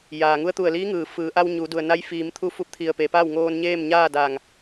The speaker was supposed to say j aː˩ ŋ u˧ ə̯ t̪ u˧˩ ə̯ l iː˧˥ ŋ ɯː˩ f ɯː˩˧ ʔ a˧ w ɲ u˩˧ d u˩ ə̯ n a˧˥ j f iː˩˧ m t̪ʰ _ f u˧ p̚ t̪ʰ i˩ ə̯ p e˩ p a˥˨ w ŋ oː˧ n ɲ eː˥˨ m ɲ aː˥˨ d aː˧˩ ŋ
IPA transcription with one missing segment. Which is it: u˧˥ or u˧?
u˧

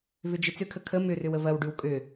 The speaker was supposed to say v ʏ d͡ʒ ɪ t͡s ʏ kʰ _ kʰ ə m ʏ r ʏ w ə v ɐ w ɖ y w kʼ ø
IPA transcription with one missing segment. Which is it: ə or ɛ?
ə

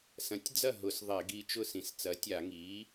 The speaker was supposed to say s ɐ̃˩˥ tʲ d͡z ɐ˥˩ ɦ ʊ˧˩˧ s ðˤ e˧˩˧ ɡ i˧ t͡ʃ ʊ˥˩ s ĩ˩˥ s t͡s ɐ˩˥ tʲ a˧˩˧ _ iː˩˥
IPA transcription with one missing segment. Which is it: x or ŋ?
ŋ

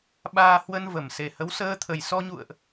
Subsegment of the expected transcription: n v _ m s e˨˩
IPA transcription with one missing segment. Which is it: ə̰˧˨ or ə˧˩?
ə˧˩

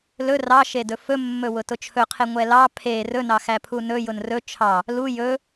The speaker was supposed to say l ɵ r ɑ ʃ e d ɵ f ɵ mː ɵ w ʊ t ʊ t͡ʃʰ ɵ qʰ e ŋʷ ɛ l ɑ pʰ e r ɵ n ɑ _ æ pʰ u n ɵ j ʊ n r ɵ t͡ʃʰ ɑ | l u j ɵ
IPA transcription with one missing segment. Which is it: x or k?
x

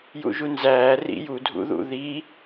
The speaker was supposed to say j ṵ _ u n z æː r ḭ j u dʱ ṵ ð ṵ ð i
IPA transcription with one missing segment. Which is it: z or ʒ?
ʒ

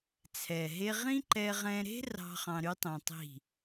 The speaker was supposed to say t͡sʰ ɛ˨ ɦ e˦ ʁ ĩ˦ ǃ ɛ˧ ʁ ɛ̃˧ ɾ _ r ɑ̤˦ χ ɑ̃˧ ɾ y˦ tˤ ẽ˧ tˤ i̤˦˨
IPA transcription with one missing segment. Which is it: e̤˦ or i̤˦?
e̤˦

